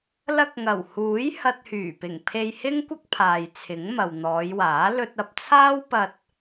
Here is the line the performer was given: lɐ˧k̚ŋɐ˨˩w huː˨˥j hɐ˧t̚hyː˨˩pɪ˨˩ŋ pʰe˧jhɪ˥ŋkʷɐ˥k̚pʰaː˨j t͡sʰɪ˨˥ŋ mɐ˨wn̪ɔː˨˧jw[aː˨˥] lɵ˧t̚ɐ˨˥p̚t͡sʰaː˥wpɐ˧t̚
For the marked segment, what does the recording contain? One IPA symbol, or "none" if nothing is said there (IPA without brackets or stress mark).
aː˨˥